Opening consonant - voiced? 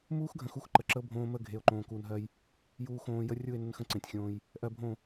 yes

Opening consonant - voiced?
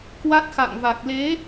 no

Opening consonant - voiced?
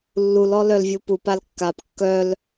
yes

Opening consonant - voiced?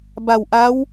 yes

